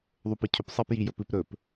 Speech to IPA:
ðˤ o p ɨ cʰ ɵ p sˤ e p j i j ɵ p ɨ p ɾ ɵ p

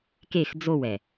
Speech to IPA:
k e x d͡z o w ɛ

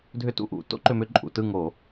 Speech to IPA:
dʱ ʏ˥˧ t ṵ˥˧ ʔ ṵ˧˩˧ t o̰˦˥ ǃ ʏ˧ m ʏ˧ ǃʼ ṵ˧˩˧ t ɯ˥˧ ŋ o˧˩˧

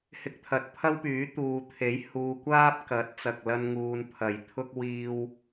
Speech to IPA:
h ɪ˧ k̚ t̪ʰ ɐ˨ t̚ pʰ ɐ˥ w p yː˨˥ t̪ uː˨ t̪ʰ e˨˥ j h uː˨ kʷ aː˥ p̚ k ɐ˨˥ t̚ t͡s ɐ˨ k̚ l ɐ˧ n ŋ uː˨ n pʰ ɐ˨˩ j t̪ʰ ʊ˥ k̚ w iː˧ w

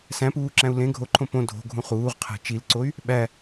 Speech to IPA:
s æ̃ p uː ǁ æ̃ u̯ l ẽ ɡʱ o ǃʰ õ p õ dʱ o̤ ɡʱ ũ χ uː ʁ qʰ æ̤ t͡ʃ i l ǀ o y̯ | ɓ æ

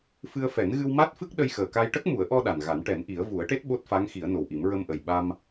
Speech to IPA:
f ɨ˧ ə̯ f ɛ˨˩˦ n ɣ ɨ˧ w m a˦˥ t̚ f ɨ˦˥ k̚ ɗ ə˧ j x əː˨˩ k a˧ j ʈ ə˦˥ k̚ m u˨˩˦ ə̯ ʔ ɔ˧ ɗ a˨˩ n ɣ a˨˩˦ n ʈ ɛ˨˩˦ n ʔ i˨˩˦ ə̯ v u˨˩˦ ə̯ ʈ e˦˥ t̚ ɓ o˦˥ t̚ f a˧˥ ŋ x i˨˩˦ ə̯ n o˨˩ w ʔ i˨˩˦ m ɹ ə˧ m ʔ ə˨˩ j ɓ a˧ m

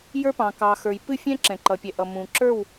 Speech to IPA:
j ə˞˦ p ɑ̃˨ k ɑ˨ x ə˞˨ j p ɨ˦˨ fʲ ɛ̃˦ ǁ ɛ̃˨ ǃ ʌ˨ pʲ ɛ˨ ʔ ʌ˨ m ũ˨ ǁ ə˞˦˨ w

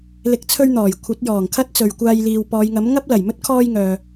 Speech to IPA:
l ɪ˨ k̚ t͡sʰ ɵ˧ ɥ n̪ ɔː˨˩ j kʷʰ ɐ˨˥ t̚ j ɔː˨˩ ŋ kʰ ɐ˥ t̚ t͡s ɵ˨ ɥ kʷ aː˧ j l iː˨ w p ɔː˨˧ j ŋ ɐ˨˥ m ŋ ɐ˥ p̚ l ɐ˨˩ j m ɵ˥ t̚ kʰ ɔː˧ j ŋ œː˨

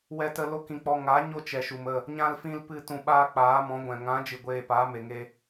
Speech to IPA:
w ɛ˦ t ə˦ l o˦ k ĩ˧ k͡p ɔ˧ ŋ a˨˦ ɲ o˦ t͡ʃ ɛ˨ ʃ u˨ m ə˦˨ | ɲ ã˦ l f ĩ˦ l p ɨ˦ t ũ˧ ɓ aː˦ k͡p aː˨˦ m ɔ̃˨˦ ɡʷ ɛ̃˨ ŋ ã˨˦ d͡ʒ ɨ˨ ɡʷ eː˨ p aː˨˦ m e˨ ŋ e˧

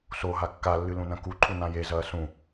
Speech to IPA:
s o ɦ a kː a lː ɨ l ũ n ɐ̃ k u ǃʰ u n ã j e z ɐː s ũ

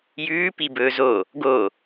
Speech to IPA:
j ʉː p i b ɵː z o | ɡ o

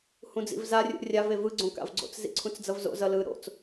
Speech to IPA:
h ũ d͡z ḭ v z a rʲ ṵ rʲ a v e v ɯ ɡ͡ǀ õ k a̰ v ɡ͡ǀ o̰ t͡s z ḭ ǀʰ ũ t͡s d͡z ʌ v z o̰ z ʌ l ɯ ɾ o̰ t͡s

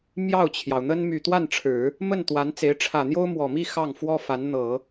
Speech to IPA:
m j ɑ˥˩ ʊ̯ t͡ɕʰ j ɑ˩ ʊ̯ n̪ ə˥ n m y˥˧ t̪ w a˥˩ n ʈ͡ʂʰ ɻ̩˨˩˦ | m ə˥˩ n t̪ w a˧˥ n t͡s e˧˥ ɪ̯ ʈ͡ʂʰ ä˨˩ n̪ j o˥ ʊ̯ m w ɔ˨˩ m i˥˧ x ɑ˥˩ ŋ f w ɔ˥ f a˧˥ n n̪ ɤ˨˩˦

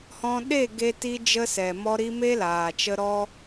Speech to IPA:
h ɔ̃˧ ɗ e˦˨ ɡ e˦ t i˦ d͡ʒ ə˦ s ɛ˨ m ɔ˧ ɾ i˧ m e˦ l aː˨ t͡ʃ ə˧ ɾ ɔ˦

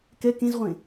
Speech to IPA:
k ɛ k ẽ z ʁʷ ẽ

